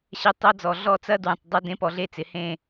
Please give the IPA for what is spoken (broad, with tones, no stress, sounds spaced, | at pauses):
ɕ ɛ˧ tˤ ɐ˦ d͡z ɔ˨ ɮ ɔ˦˨ t͡s ɐ˦ d w ɛ̃˨ tˤ dˤ ʌ˦ d ẽ˧ p ɔ˧ ɮ e˧ t͡s ɪ˨ h ẽ˦˨